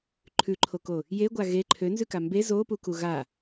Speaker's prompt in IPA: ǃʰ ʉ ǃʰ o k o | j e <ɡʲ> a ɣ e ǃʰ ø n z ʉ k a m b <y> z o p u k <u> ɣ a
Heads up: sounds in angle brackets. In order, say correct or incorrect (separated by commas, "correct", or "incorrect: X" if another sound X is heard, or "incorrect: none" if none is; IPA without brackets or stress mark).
incorrect: ɡʷ, incorrect: e, correct